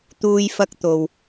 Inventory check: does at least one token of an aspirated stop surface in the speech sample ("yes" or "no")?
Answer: no